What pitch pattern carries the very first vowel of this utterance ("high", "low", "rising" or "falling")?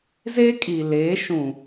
high